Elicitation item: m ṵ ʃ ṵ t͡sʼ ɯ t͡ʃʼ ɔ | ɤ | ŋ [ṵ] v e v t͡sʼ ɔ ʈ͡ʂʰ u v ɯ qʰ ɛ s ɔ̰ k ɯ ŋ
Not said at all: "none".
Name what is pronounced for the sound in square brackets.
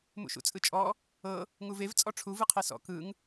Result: u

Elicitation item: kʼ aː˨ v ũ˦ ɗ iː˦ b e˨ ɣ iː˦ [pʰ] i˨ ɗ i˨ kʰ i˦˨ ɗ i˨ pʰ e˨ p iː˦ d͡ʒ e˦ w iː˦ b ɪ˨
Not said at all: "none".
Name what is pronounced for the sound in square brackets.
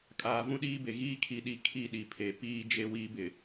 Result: kʰ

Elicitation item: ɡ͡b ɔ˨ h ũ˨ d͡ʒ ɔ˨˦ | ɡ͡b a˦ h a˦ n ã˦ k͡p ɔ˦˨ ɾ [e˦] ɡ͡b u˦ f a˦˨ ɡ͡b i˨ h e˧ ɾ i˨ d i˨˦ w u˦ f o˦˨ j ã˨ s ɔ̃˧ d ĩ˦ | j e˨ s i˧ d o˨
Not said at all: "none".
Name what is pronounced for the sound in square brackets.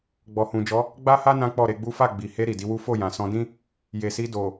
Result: e˧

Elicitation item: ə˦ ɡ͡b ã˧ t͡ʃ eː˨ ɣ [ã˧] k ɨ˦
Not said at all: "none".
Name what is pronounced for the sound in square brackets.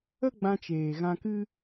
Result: ã˧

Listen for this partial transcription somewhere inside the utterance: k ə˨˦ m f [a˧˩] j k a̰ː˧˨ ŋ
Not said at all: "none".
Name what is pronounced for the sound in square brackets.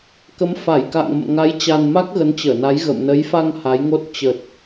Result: a˧˩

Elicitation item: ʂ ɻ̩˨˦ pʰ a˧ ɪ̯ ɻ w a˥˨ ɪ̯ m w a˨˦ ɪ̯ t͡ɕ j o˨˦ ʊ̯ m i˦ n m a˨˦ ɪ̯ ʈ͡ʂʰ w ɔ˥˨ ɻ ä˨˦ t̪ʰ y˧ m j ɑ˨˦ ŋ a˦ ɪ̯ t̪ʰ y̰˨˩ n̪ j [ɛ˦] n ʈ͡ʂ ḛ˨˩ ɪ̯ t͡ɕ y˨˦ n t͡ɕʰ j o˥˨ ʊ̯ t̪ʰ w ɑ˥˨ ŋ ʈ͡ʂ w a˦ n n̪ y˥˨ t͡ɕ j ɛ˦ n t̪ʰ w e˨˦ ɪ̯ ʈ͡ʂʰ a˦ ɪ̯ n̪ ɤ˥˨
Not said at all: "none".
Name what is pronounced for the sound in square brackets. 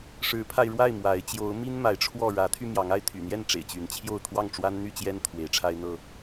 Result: ɛ˥˨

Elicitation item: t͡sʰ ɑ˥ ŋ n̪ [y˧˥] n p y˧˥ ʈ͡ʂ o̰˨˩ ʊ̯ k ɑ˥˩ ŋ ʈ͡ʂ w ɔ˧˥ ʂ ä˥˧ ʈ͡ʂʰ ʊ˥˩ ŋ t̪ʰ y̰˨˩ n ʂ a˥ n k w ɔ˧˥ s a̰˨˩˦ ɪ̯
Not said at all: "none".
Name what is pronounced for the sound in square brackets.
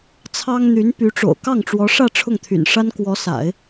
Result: y˧˥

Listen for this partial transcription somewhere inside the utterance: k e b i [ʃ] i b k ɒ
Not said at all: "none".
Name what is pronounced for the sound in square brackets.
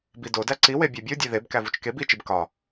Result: t͡ʃ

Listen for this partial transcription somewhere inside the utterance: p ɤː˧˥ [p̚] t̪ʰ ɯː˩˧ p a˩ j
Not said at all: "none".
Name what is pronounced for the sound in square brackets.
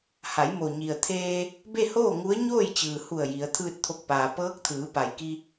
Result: k̚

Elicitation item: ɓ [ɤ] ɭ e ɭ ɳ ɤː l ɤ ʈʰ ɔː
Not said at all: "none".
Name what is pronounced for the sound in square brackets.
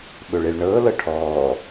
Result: ɵ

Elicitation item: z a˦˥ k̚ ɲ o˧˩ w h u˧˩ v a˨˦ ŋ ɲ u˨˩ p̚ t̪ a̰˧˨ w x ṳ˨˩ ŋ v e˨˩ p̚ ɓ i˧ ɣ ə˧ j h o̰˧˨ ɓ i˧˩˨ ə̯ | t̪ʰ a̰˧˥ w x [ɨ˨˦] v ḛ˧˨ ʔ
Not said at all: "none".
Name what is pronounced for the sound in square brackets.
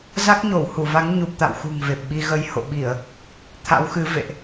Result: ɨ˨˦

